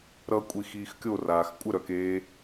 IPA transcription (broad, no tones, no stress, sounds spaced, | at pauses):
ɾ ʌ kʷʼ i x iː x kʲ o r aː x kʷʼ ə ɾ œ k eː